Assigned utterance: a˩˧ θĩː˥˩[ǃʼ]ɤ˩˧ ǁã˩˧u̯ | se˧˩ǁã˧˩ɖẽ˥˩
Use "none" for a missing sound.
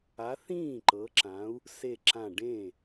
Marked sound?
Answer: ǃ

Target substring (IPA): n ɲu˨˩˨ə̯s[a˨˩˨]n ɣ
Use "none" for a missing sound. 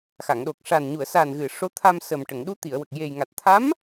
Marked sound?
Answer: a˨˩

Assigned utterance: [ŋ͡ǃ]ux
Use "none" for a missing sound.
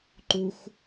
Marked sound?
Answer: ǃ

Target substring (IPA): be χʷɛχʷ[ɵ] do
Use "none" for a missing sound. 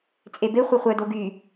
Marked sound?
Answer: œ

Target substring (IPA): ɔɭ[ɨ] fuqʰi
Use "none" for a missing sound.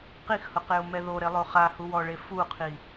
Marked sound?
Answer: e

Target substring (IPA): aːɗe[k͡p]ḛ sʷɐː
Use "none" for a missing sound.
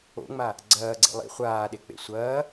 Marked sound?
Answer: k͡p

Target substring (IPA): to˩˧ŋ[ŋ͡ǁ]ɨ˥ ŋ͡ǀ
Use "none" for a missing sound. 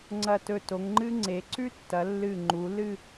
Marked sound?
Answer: ŋ͡ǃ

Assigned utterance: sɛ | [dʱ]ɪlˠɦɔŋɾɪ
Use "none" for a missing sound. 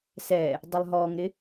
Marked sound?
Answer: dˤ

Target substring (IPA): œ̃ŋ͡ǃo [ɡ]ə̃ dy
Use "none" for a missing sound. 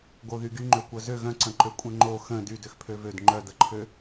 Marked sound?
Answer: x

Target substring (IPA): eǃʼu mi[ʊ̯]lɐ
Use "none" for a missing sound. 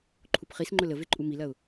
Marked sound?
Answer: none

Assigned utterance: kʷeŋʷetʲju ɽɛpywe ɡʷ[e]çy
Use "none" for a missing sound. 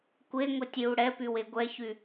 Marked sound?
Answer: ɛ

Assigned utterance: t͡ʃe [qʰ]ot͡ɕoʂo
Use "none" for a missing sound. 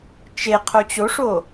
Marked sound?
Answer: qʰ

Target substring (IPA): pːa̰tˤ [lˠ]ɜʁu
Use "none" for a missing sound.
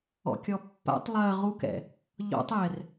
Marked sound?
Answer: lˠ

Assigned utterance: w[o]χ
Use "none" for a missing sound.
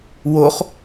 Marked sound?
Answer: o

